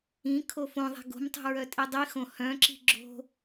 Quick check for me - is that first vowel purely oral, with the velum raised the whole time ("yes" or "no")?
no